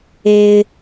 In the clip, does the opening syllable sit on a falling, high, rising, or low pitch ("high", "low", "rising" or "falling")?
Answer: high